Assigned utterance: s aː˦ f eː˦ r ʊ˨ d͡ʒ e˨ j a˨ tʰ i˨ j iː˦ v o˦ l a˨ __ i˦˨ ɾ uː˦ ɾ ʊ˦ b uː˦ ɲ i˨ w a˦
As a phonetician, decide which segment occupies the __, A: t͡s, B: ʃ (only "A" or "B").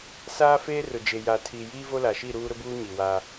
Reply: B